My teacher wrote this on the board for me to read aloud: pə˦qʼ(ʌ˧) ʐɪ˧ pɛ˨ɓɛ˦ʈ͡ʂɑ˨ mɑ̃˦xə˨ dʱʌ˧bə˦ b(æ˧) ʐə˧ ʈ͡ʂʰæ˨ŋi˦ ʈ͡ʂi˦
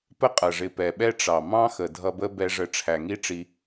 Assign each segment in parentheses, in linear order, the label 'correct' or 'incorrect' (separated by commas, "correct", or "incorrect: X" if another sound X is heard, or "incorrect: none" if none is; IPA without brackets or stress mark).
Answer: incorrect: ʌ˨, incorrect: ɛ˧